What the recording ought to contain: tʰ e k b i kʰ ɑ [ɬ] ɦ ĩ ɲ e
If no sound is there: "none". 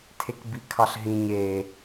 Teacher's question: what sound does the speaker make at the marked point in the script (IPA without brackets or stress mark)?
ɬ